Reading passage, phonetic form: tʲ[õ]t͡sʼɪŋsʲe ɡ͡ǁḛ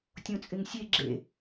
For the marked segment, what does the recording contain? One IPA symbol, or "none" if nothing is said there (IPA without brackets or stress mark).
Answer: õ